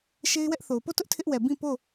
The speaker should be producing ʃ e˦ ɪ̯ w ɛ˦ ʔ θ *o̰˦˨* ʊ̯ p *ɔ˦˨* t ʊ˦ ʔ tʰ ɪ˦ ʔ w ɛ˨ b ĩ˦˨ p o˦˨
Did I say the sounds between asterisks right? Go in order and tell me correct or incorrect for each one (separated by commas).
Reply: incorrect, incorrect